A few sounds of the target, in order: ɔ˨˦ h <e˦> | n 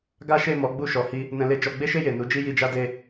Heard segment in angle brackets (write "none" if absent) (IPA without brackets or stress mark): i˦